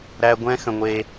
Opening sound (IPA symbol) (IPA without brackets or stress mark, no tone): ɾ